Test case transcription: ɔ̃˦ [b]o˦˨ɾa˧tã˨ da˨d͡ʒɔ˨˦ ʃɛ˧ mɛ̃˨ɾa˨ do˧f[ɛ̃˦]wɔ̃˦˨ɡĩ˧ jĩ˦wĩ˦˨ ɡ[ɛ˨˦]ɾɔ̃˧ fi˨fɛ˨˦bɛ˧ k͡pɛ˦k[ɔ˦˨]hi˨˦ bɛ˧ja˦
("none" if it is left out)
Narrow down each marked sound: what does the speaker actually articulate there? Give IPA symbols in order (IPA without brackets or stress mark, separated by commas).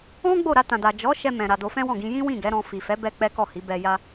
ɡ͡b, ɛ̃˦, ɛ˨˦, ɔ˦˨